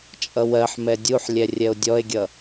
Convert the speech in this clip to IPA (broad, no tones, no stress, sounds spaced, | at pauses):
t͡ʃʼ ʌ w ɜ ħ m ɛ dʲ u ħ lʲ ɛ rʲ ɛ o̯ dʲ ɔ e̯ ɡʲ ʌ